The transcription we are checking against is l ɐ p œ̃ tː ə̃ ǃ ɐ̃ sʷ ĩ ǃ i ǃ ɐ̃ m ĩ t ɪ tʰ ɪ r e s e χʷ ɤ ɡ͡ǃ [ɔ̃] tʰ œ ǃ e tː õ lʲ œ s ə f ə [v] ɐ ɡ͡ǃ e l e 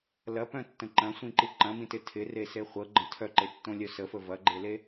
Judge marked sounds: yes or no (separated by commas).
no, yes